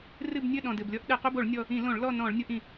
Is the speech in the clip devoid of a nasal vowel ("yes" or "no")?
no